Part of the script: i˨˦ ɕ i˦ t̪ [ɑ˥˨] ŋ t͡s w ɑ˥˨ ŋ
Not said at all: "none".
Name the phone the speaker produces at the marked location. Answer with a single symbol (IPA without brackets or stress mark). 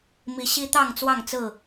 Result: ɑ˥˨